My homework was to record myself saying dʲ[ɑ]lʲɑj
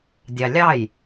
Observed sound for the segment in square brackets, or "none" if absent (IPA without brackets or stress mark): ɑ